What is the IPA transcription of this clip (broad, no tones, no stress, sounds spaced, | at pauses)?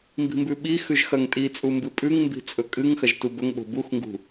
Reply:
m b i̤ m b ʉ ɓ i x ʉ ʒ x ɐ ŋ tʼ i t͡sʼ u m b ɨ pʼ ʉ ŋ m b i̤ t͡sʼ ɵ kʼ ɨ ŋ x ɐ ʒ t u b ɵ ŋ ɓ o̤ b u x ŋ ɡ ṳ